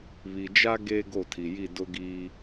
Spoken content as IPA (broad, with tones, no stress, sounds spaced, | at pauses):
β i˨ d͡ʒ a˦ ɡ e˦ ɡ o˦˨ tʰ i˨ j i˦˨ d ʊ˦ ɡ iː˦